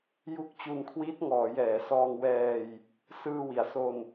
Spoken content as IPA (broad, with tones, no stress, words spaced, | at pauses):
ju˦˥k̚t͡ɕu˧nkʰwiː˦˥t̚ ŋɔː˩˦ jɛː˩˦sɔː˧ŋwɛː˧j | sɯː˧wi˩˦a̯so˧n